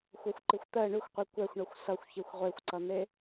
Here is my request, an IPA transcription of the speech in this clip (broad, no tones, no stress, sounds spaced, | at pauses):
xʷ ʌ xʷ ǃ i xʷ t̪ ɜ ɳ ʉ xʷ qʷ i kʷ ɛ xʷ ɳ ʌ xʷ s ʌ xʷ ç i xʷ ʁʷ e xʷ ǀ ʌ n̪ e